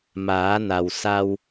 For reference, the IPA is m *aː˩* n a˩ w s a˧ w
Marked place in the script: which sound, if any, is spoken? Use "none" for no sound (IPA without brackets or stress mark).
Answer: aː˩˧